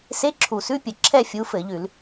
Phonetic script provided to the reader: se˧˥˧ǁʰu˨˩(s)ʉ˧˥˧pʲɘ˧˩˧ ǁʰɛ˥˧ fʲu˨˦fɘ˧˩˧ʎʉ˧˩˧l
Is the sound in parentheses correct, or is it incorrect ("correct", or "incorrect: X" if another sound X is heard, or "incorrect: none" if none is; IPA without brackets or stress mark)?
correct